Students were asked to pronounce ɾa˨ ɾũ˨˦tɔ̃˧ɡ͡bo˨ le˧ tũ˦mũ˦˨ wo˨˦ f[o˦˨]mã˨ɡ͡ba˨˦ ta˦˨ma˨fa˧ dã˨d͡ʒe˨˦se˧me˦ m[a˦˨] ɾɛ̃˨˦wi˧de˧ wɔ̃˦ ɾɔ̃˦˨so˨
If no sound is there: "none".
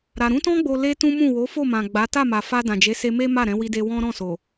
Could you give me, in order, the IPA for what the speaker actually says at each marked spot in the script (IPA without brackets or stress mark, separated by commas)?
o˦˨, a˦˨